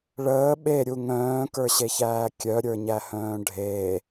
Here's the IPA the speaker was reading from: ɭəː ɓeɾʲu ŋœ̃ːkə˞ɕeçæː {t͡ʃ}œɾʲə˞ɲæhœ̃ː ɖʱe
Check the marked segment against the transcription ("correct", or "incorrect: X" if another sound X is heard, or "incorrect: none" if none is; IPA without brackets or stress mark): incorrect: kʲ